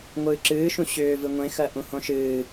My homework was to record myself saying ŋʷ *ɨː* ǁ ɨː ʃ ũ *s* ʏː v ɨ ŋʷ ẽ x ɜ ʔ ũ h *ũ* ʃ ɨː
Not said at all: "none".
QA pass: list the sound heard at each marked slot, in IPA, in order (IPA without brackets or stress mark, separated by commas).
ɨː, ɕ, õ